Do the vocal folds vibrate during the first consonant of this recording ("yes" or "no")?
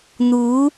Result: yes